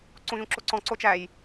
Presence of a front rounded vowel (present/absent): absent